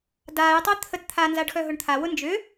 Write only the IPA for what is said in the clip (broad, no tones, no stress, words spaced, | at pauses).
daːjtˤʏː t̪ʰət t̪ʰanzaɖxœɦʊɳ t̪ʰawʊ nd͡ʒʏ